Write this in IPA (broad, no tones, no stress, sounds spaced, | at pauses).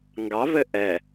ŋ ɡ ɑ v ɘ ʔ ɛ